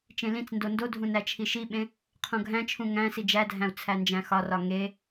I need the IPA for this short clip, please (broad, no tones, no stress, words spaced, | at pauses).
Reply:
t͡ʃẽlĩt͡sndo ndodʱũ næt͡ʃʰiʃiɓẽ | qʰõɡʱæ̃t͡ʃʰũ ŋæ̃si d͡ʒædʱæ̃u̯ t͡sʰænd͡ʒæ̃xɒrɒ ŋe